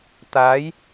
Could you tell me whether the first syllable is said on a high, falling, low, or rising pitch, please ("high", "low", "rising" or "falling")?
rising